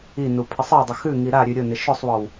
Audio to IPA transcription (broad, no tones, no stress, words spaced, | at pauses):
inu pʰɪsˤɘwdˤə xʉŋi ɾaɾʲʉ ɾʲʊnɪ ʃʊsˤwɔw